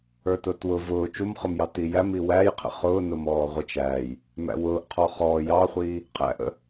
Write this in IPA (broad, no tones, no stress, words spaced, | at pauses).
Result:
ə˞tʊːtwʊ vʊː t͡ʃumχʊmjɑ tijæmi wæːjqʰə̰ χʊːnʊmɔː ʁʷɪt͡ʃæːj | mæ̰wʊːʔ qʰɔχɔː jɑχʷiː | qʰæ̰ʔə̰